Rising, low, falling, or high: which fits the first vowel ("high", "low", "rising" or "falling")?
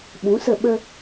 rising